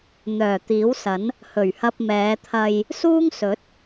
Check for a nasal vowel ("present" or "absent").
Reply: absent